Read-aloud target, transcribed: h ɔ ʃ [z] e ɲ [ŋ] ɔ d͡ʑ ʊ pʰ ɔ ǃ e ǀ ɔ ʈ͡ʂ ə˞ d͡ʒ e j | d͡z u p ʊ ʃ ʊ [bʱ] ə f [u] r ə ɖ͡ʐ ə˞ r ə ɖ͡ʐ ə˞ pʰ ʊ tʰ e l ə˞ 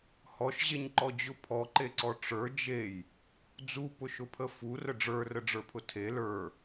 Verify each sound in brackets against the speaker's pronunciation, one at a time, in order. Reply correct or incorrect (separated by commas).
incorrect, incorrect, incorrect, correct